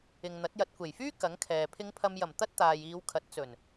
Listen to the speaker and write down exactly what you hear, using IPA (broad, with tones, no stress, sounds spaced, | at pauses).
ɪ˨ ŋ n̪ ɐ˨˥ t̚ j ɐ˨ t̚ kʷ e˨˩ j f yː˥ k ɐ˨˥ ŋ kʰ ɛː˨ pʰ ɪ˨˧ ŋ pʰ ɐ˨ m j ɐ˨˩ m t̪ ɐ˥ t̚ t̪ aː˨ j iː˨˧ w kʰ ɐ˨˥ t̚ t͡s ɵ˨˩ n